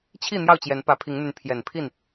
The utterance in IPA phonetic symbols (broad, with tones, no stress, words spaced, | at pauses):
t͡ɕʰi˥˨ n̪jɑ˥˨ʊ̯t͡ɕjɛ˨˦npä˨˦ pʰi˨˦ŋn̪y˨˦n pʰjɛ˨˩npʰi˥˨n